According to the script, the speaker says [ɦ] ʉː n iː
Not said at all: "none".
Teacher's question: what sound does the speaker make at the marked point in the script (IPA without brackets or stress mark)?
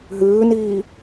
ɦ